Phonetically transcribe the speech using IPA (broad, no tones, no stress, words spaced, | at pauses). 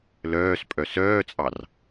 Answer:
lœːspʼœ sœːt͡sʼɑr